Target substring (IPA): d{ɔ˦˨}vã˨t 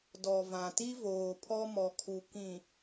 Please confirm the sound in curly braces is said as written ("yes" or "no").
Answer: no